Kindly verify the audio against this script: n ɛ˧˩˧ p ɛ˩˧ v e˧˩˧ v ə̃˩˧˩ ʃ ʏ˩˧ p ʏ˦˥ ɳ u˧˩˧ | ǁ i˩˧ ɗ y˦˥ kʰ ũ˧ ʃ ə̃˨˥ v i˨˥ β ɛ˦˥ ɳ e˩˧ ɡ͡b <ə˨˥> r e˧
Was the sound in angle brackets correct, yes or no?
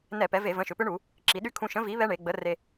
yes